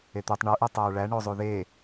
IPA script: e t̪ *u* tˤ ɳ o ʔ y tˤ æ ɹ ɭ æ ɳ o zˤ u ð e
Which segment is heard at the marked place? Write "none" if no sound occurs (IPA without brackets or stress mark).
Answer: y